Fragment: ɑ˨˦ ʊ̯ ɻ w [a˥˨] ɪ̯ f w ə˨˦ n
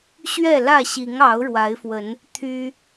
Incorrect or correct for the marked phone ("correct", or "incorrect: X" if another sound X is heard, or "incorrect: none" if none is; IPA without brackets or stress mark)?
incorrect: a˨˦